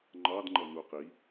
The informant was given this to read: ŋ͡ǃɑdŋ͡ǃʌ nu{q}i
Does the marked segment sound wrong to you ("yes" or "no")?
no